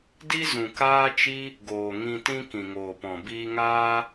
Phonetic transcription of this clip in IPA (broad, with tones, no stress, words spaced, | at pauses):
di˦zũ˨ kaː˦t͡ʃi˦ | ɡoː˨ŋĩ˧tĩ˦ kĩ˨ŋoː˨pɔ̃˨ biː˧ŋaː˦